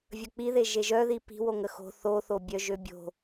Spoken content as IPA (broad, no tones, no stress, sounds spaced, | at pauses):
vʲ ə k͡p i ð e ʒ e ʒ œ ð i p i̤ w o ŋ ə x o̤ θ o θ o bʲ œ ʒ ø bʲ o̤